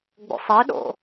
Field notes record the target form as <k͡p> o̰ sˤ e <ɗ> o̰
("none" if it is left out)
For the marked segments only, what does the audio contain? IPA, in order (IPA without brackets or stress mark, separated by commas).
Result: ɡ͡b, ɗ